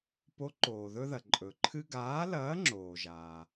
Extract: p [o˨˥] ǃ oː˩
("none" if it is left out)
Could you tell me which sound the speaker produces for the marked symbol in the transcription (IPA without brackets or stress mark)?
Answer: o˨˥